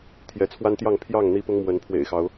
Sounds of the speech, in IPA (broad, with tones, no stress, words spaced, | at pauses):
t̪ʰjɛ˨˦t͡sʰwa˦nt̪jɑ˥˨ŋ pʰjɑ˥˨ŋ n̪i˦pʊ˦ŋmwə˨˦n pʰwḛ˨˩ɪ̯xɑ˨˦ʊ̯